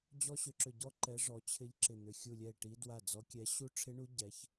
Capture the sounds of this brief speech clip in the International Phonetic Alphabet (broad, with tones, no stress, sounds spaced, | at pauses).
d͡ʑ ɔ˦˥ ɕ ʏ˨˦ ǁ ʏ˧˩ ɟ ɔ˦˥ ǃ ɛ˨˦ ʐ ɔ˨˦ t͡ɕʰ ɪ˦˥ ʎ ǁ ɪ˧˩ n̪ ʏ˧˩ xʲ u˧˩ lʲ ɛ˧˩ e̯ ʈ i˨˦ d w a˧˩ d͡z ɔ˨˦ kʲ ɛ˨˦ ɕ u˦˥ ʈ͡ʂʰ ɪ˦˥ ɳ u˦˥ ɟ ɛ˨˦ ç